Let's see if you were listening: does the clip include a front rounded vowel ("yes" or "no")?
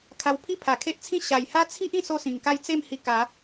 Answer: no